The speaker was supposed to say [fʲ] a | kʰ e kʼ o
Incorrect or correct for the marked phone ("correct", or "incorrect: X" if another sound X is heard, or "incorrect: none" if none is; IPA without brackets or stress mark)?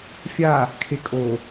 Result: correct